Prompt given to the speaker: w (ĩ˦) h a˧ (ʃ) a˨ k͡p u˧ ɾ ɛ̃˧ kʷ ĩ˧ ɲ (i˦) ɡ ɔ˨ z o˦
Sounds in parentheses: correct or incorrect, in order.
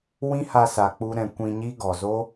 correct, incorrect: s, correct

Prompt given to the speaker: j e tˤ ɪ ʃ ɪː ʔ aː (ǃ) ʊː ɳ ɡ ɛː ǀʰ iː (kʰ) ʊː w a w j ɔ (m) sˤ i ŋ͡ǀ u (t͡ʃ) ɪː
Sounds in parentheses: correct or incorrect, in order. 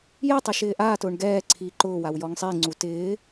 incorrect: t, incorrect: ǃ, incorrect: ŋ, incorrect: t

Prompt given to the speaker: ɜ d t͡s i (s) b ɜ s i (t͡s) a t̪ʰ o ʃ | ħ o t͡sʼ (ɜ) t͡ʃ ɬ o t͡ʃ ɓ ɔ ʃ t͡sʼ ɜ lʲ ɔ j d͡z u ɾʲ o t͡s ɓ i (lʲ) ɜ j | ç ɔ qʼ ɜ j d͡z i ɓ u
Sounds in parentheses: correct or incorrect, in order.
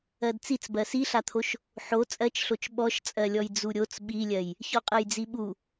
incorrect: t͡s, incorrect: ɬ, correct, correct

